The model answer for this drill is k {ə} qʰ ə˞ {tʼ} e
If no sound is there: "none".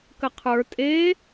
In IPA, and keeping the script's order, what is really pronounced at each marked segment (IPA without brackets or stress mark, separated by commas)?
ə, tʼ